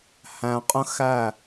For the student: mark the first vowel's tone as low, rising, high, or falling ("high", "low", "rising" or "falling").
low